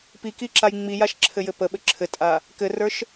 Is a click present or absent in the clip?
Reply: present